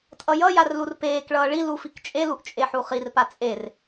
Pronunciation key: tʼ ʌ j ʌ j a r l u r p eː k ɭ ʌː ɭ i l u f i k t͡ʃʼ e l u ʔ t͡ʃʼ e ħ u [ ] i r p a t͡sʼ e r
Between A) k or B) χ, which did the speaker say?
B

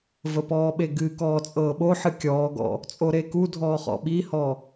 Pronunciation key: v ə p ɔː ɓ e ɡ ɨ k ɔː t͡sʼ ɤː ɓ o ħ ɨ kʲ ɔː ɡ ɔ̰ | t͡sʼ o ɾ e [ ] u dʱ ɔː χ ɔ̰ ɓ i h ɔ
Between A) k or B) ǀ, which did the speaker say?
A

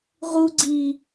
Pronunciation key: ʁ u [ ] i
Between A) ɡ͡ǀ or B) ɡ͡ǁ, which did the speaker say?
A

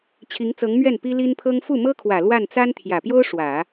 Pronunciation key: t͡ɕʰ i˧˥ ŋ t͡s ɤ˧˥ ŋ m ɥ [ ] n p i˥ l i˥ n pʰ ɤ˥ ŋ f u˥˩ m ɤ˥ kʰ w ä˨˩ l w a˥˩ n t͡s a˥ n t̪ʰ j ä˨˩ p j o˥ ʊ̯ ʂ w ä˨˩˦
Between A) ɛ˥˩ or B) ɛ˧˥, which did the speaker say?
A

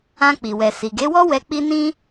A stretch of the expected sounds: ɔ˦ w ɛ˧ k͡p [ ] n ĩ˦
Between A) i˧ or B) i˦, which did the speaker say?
B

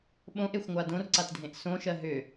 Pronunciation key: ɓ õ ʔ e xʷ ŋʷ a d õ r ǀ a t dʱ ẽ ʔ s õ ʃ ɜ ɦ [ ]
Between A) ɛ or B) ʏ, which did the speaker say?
B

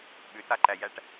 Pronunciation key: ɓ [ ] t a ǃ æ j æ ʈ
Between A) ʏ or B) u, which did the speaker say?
A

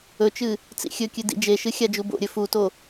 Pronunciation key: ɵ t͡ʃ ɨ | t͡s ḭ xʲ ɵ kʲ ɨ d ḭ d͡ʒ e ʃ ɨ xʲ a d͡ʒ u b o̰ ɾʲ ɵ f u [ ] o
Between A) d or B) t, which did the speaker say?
B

